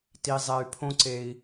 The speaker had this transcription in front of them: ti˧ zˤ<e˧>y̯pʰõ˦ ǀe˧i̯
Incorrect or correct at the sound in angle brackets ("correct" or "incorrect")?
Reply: correct